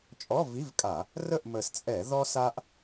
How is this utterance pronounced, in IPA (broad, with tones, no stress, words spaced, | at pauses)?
t͡ʃʼɔ˧˥˧vi˧˥˧vkʼa˧˩˧ | rə˥˨ʔmə˨˩st͡sʼɛ˧˩˧ ðɔ˥sa˥ʔ